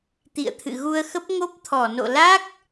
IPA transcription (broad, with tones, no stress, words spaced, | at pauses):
t̪ḭ˧˨ə̯t̪ʰɨ̰˧˨ɣu˧ə̯xə˦˥p̚ ŋo˦˥p̚t̪ʰɔ˧˩no̰˧˨ la˦˥k̚